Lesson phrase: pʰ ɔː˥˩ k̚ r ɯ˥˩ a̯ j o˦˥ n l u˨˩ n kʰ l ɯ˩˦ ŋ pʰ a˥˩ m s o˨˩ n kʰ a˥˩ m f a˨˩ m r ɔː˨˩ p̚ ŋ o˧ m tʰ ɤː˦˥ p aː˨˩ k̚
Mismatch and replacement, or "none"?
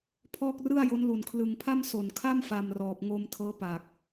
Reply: none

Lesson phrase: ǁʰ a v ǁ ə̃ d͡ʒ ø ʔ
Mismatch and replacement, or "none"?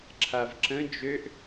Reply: none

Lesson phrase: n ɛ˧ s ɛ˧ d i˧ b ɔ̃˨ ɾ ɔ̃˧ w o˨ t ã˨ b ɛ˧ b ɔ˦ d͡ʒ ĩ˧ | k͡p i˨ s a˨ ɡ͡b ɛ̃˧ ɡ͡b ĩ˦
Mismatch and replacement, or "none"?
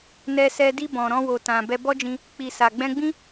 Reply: none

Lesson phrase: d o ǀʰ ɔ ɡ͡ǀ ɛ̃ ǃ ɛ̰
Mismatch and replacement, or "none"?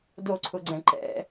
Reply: ɔ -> ʊ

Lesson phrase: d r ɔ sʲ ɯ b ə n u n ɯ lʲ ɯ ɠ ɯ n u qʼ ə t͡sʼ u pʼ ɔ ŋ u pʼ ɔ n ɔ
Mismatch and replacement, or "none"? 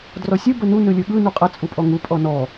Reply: none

